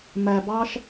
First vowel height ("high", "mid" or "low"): low